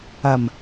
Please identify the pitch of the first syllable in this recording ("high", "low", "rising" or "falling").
low